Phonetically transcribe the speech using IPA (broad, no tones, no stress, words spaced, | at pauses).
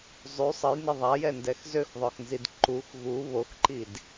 zˤy sˤəjnə ðˤajɛndɛx zøxðˤœxnzid ǃux ɣu βoxǃid